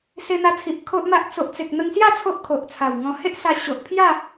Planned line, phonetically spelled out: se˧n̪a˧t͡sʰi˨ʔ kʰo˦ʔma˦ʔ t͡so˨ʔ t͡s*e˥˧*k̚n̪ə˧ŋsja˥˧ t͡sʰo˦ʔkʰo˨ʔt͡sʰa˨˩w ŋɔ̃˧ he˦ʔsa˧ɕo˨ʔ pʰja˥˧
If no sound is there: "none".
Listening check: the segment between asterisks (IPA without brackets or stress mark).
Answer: e˨